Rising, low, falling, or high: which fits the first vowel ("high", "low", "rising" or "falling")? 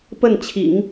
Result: falling